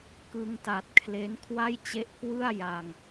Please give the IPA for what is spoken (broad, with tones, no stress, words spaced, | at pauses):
kɯ˧ŋta˨˩t̚kʰle˦˥n kʰwa˥˩jt͡ɕe˦˥ʔ kwɯ˥˩a̯ ja˧ŋ